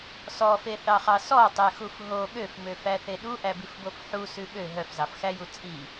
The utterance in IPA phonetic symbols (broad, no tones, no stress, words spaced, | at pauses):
sɔfeθɑχɑ sɔtˤɛxuf ɦo ɠøfmøfæθe ɗuʔæbifbof ħusʉ ɓø ɦœfzɑfxæju t͡sʼi